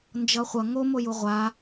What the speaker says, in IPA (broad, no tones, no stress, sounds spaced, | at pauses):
n d͡ʒ ʌ χʷ ʌ ŋ o m o j u ʁʷ a